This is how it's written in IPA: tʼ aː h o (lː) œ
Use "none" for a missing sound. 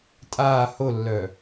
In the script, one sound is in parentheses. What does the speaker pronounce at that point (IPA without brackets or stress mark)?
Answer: lː